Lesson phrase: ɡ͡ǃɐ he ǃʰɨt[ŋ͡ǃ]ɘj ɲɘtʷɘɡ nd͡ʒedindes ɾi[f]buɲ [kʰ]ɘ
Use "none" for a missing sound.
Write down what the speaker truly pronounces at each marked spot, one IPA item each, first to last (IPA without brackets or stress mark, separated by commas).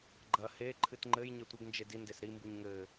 ŋ͡ǃ, m, ŋ